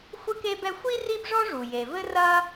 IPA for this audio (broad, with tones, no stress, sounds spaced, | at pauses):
xʷ ɨ˥ k e˥ b ɛ˥ xʷ i˥ r i˥ b ʐ ɔ˥ ʐ u˩ j e˩ v ɘ˥ r ɐ˥